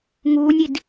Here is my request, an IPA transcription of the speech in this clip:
ŋ uː nʲ i d

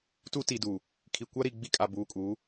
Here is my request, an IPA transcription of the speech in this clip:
t u˦ t i˨ d uː˨ | kʰ i˨ kʷ a˦ ɾ i˨ ɡ͡b i˦ kʼ a˨ b uː˨ kʼ uː˨˦

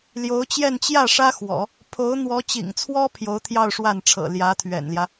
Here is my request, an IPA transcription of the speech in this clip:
l j o˧˥ ʊ̯ t͡ɕ j ɛ˥˧ n t͡ɕ j ä˥˩ ʂ ä˥ x w ɔ̰˨˩˦ | pʰ o˧˥ ʊ̯ n̪ w ɔ˧˥ t͡ɕ ḭ˨˩ ŋ t͡sʰ w ɔ˥ pʰ j o˧˥ ʊ̯ t̪ʰ j ɑ˥˧ ʊ̯ ʂ w a˥˩ n ʈ͡ʂʰ ɤ̰˨˩ l j ä˧˥ t̪ʰ ɥ ɛ̰˨˩ n l j ä˦

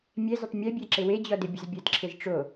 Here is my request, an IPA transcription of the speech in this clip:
mʲ ɛ z ə tˤ mʲ e bʲ ɛ ǁ ɪ w e d͡ʑ ɔ d ɪ bʲ ə z bʲ ə d ǁʰ ɪ z ʈ͡ʂ o

